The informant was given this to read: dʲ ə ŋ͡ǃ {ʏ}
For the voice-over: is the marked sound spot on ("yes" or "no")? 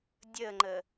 no